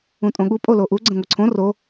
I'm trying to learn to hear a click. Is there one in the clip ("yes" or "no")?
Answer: yes